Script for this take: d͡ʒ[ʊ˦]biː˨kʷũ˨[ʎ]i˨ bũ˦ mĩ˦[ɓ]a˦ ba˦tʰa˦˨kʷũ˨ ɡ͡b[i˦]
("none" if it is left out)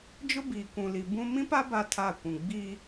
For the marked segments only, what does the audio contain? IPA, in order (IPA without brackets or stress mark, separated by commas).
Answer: ʊ˦, l, p, i˦